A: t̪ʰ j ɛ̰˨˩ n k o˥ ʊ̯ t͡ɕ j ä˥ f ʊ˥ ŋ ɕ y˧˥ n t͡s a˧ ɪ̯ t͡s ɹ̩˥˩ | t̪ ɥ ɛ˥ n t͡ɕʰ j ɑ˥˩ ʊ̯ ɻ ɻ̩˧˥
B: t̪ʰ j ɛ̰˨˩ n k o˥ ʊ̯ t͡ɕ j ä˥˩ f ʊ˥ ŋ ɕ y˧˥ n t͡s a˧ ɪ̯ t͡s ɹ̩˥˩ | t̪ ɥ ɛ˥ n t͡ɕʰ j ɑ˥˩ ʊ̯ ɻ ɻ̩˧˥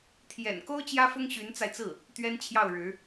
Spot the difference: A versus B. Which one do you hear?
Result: A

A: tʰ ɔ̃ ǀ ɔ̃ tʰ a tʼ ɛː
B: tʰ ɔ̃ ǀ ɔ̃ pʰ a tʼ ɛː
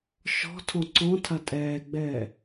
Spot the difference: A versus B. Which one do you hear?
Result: A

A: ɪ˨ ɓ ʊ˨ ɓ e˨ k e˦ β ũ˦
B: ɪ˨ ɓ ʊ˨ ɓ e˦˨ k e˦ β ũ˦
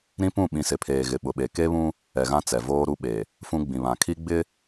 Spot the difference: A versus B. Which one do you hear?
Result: A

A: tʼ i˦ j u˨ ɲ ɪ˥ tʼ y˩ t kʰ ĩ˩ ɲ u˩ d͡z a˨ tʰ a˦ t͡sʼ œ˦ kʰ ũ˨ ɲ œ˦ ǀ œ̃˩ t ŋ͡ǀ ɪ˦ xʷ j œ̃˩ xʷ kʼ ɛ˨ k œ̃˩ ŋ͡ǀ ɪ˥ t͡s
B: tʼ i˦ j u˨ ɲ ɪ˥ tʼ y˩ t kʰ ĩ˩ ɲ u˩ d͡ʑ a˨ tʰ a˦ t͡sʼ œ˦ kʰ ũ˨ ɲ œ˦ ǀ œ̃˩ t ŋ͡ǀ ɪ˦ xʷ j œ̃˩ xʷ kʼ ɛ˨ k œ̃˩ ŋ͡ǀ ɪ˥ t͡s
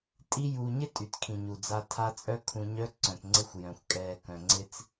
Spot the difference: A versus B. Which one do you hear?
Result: A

